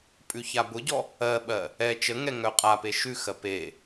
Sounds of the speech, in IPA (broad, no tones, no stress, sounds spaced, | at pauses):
pʼ ʉ ç a b ʊ ɟ ɔ | ɜ ɓ ɜ | ɛ t͡ʃ ə ŋ ɛ ŋ œ qʼ a p e ʃ ʉ x ɜ p e